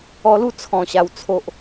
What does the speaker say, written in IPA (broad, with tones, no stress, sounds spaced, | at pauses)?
ɔ˧ l u˥˧ t͡sʰ ɔ̃˨˩ ɕ a˨˩ w t͡sʰ o˨ ʔ